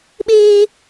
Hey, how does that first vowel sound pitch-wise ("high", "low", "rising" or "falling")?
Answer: high